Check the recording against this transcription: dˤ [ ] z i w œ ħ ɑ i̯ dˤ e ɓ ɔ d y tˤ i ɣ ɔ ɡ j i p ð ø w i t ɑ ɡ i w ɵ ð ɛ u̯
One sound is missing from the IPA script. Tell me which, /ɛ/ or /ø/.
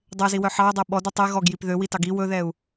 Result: ø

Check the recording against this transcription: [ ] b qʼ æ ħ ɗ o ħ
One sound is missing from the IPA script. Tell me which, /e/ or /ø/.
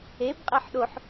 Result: e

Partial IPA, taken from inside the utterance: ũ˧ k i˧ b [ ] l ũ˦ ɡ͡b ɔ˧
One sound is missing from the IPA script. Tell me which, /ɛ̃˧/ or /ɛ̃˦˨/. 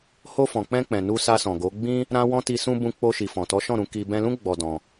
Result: ɛ̃˧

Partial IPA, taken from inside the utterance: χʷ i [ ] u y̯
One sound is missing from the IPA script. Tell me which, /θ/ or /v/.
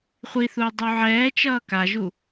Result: θ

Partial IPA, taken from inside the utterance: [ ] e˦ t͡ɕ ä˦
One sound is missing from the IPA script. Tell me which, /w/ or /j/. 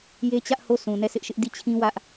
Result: j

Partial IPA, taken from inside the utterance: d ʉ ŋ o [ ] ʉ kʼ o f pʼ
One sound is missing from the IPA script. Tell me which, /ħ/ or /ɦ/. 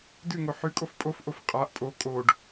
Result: ħ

